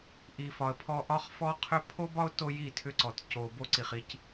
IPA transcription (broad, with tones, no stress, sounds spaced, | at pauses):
ʔ i˨ f ɒ˨ ə̯ pʰ ɔ˦ ʔ ɒ˦ χ f ɔ˦ qʰ ʏ˦ pʰ o˦ b ɒ˦ ʊ̯ t o˦ j i˦˨ tʰ ʏ˦ ǀ ɔ˨ t c o˨ b o˦ ǀ i˨ χ i˦ c